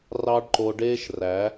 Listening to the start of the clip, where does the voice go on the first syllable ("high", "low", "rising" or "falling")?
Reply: high